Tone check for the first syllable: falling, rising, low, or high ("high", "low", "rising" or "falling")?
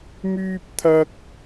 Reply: high